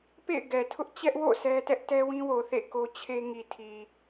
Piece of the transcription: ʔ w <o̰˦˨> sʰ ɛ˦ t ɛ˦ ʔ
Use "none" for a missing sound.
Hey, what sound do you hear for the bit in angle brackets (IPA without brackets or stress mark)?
o̰˦˨